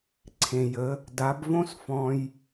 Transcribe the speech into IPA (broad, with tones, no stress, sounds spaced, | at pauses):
ǀʰ ẽ˩ j ə˩˥ | d a˩˥ b v õ˥ s f ɔ̃˧ j